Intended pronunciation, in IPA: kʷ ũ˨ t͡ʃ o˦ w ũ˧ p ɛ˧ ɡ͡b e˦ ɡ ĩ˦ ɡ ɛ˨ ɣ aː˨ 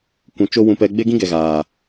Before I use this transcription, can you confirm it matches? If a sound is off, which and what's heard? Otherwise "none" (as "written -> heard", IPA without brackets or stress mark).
none